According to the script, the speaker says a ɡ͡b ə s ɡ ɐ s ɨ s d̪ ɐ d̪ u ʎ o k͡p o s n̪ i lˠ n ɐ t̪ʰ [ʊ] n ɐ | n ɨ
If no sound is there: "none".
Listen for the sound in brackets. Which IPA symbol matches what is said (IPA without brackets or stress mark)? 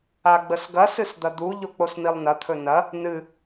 ɵ